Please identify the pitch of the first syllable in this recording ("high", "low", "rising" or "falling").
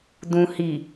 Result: low